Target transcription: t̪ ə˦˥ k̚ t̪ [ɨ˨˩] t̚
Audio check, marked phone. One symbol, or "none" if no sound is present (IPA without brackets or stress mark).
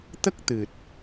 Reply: ɨ˨˩